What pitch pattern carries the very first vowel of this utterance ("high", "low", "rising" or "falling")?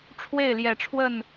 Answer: falling